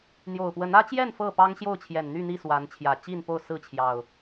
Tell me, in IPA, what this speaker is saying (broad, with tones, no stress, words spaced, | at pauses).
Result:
n̪jo˨˩ʊ̯pwə˨˦nä˦t͡ɕjɛ˥˨n fɤ˥˨pɑ˦ŋɕjo˥˨ʊ̯t͡ɕʰjɛ˨˩n n̪y˥˨n̪i˥˨ swa˨˦nt͡ɕʰjä˨˩ t͡ɕi˥˨npo˥˨ʊ̯ sɹ̩˥˨t͡ɕʰjɑ˨˩ʊ̯